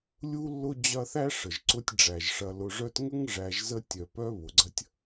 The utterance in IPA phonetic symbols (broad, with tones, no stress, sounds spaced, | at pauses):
lʲ u˦ lː ʊ˦ d͡ʑ ɐ˦ θ æ˥ ʂ ə˩ ʒ ǀ ʊ˦ tʲ ɖ͡ʐ æ˩ ʒ ʂ ɐ˨ l ʊ˨ ʐ œ˦ t ŋ ə˥ ŋ ʐ æ˨ ʒ z ə˦ tʲ œ˨ p œ˥ β ʊ˩ ɡ͡ǀ ɐ˥ tʲ